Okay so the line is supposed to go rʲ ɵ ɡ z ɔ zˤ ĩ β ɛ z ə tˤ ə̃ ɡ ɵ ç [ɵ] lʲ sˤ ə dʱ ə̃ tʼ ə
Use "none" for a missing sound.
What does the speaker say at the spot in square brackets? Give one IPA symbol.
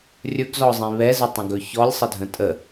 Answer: ɔ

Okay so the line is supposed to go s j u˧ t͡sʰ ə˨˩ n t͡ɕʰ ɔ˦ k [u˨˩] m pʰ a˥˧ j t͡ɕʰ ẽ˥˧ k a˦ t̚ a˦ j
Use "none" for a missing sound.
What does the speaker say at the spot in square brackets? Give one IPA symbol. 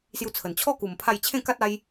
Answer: u˨˩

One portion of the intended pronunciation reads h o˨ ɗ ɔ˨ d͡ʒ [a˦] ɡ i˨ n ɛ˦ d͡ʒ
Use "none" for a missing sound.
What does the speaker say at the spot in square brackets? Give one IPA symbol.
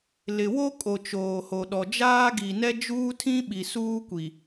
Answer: aː˦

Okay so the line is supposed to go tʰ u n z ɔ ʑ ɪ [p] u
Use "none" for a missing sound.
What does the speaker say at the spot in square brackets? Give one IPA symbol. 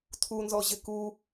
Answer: k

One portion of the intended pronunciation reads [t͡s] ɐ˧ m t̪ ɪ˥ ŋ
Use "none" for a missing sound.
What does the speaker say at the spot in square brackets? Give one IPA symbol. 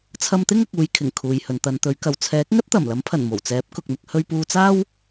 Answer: t͡sʰ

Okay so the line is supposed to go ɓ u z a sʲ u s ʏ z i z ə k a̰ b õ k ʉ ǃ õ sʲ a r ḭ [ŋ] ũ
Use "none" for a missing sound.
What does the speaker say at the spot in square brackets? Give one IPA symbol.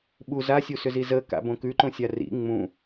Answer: ŋ͡m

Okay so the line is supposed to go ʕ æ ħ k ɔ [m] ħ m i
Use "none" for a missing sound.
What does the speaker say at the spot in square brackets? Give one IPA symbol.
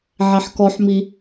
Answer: none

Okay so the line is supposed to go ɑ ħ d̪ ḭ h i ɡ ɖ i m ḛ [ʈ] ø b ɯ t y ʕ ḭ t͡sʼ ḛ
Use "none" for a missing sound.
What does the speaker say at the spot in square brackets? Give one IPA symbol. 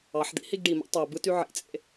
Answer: tˤ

